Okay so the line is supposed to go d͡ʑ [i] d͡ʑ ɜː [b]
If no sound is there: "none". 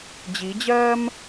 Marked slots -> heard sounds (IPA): i, m

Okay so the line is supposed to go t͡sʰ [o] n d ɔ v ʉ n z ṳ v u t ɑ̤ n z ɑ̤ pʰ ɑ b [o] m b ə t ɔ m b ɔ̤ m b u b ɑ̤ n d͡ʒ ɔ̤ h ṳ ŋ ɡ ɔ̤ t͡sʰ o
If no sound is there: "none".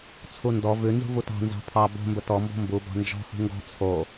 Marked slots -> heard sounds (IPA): u, o̤

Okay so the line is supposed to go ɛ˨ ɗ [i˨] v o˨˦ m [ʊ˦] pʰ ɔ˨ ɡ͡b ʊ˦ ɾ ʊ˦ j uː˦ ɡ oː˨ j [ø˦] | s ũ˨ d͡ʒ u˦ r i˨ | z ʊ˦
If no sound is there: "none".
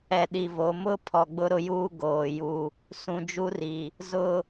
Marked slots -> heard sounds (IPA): i˨, ʊ˦, u˦

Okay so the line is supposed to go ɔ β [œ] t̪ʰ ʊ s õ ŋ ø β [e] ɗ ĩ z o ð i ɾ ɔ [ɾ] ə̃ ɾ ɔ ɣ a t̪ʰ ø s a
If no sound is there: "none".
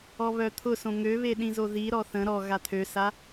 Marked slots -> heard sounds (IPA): œ, e, θ

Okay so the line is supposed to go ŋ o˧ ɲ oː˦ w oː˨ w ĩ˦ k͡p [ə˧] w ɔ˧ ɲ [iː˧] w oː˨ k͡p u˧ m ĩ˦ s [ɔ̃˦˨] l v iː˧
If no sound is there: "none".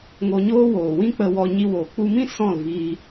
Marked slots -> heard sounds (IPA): ə˧, i˧, ɔ̃˦˨

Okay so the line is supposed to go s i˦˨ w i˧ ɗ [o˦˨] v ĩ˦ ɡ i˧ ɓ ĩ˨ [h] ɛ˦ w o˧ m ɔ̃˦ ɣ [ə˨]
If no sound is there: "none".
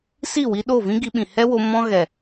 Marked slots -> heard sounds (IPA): o˦˨, h, ɛ˨

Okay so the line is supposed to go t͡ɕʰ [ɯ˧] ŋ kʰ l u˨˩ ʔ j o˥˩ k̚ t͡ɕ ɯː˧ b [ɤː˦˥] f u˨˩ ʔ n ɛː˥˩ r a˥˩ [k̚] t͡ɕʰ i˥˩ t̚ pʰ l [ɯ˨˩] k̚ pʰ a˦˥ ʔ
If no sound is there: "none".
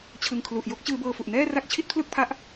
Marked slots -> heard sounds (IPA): ɯ˧, ɤː˧, k̚, ɯ˥˩

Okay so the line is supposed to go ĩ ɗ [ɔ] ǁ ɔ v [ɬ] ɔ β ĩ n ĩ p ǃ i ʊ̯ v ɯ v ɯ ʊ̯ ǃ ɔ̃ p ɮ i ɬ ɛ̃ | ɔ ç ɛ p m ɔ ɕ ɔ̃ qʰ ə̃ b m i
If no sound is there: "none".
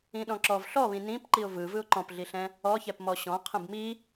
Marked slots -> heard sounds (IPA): ɔ̃, ɬ

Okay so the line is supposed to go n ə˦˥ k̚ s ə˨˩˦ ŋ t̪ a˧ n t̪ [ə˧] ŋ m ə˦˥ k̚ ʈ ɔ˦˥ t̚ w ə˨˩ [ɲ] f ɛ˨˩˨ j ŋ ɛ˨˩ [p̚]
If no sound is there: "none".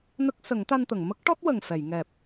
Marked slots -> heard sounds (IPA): ə˨˩˨, ŋ, p̚

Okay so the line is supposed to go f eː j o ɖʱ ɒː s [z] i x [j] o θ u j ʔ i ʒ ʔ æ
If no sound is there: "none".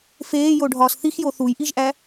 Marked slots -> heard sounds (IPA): θ, j

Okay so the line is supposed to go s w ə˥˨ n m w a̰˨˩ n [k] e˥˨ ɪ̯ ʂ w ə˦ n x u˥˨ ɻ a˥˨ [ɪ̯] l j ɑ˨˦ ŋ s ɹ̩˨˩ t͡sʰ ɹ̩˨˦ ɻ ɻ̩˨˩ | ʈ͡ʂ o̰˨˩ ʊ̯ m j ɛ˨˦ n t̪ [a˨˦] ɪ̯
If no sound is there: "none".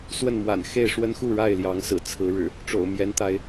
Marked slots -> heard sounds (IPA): x, ɪ̯, a˨˦

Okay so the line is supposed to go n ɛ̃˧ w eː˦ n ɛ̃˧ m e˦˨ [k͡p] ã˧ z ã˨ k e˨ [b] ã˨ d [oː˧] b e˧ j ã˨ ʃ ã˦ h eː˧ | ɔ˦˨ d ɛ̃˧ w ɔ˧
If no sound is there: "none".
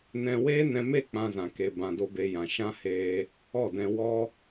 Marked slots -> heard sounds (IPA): k͡p, b, o˧

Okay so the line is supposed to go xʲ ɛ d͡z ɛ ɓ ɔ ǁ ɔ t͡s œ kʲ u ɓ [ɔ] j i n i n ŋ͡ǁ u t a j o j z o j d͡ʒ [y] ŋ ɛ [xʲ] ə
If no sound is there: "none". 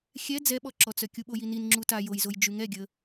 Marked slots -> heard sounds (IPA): o, y, ɡʲ

